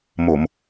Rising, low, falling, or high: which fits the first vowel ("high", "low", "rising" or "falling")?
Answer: low